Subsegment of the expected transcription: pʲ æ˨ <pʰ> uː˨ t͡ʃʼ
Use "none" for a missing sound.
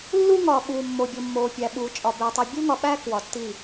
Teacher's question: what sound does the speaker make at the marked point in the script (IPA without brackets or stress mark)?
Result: ɓ